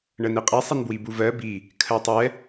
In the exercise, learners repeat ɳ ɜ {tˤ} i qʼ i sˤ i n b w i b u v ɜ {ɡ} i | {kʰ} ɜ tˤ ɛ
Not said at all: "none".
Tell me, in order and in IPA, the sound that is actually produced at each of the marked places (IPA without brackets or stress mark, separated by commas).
n, b, kʰ